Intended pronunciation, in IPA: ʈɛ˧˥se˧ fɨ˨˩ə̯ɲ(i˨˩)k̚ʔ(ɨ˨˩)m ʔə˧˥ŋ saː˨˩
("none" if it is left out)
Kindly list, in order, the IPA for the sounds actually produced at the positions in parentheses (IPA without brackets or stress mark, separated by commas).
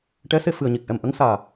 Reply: i˨˩, ɛ˨˩